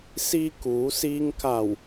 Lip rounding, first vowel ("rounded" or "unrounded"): unrounded